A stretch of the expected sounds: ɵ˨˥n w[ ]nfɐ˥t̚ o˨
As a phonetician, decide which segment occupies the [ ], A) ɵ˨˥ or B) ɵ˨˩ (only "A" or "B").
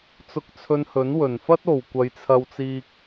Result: B